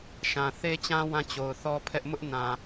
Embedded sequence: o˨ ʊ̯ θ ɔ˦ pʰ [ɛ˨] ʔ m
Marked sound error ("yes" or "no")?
yes